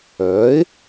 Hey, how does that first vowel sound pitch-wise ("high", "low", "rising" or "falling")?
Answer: rising